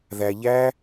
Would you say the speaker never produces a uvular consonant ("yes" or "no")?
yes